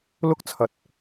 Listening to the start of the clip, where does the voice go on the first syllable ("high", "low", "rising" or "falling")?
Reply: high